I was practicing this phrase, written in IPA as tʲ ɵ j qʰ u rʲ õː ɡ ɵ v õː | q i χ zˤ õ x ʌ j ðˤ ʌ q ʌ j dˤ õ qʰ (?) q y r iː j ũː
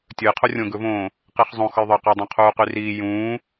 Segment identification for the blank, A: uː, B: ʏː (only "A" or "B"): A